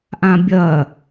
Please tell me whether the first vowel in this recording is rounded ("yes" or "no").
no